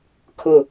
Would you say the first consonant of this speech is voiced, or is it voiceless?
voiceless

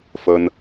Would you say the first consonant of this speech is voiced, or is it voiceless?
voiceless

